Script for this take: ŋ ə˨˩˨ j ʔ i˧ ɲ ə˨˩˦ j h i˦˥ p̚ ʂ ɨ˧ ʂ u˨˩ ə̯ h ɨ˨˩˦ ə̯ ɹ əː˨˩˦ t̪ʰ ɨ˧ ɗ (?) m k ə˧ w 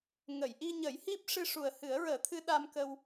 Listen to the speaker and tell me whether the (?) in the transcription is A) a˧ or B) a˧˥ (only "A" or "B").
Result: A